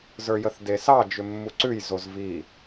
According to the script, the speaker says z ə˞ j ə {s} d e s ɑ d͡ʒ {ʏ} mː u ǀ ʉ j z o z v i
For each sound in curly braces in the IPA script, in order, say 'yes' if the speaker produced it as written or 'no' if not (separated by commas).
no, yes